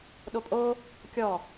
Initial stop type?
implosive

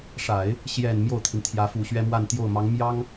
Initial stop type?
aspirated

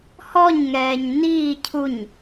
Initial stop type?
aspirated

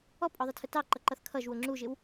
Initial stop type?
ejective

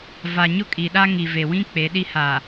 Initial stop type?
ejective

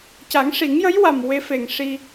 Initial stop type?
plain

